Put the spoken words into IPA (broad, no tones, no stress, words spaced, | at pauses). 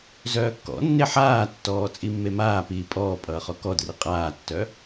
zœːkːɔ̰nːe ħaːtːɔː t͡sʼimːemaːpiː pʼɔːpʼʌː χɔkɔdri qʼaːtːœ